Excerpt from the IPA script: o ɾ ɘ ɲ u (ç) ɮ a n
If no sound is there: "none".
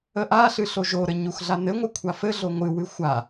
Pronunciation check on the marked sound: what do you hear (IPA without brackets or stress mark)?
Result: x